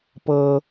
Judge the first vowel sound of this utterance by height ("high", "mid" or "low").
mid